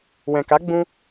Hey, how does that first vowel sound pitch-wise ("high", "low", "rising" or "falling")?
low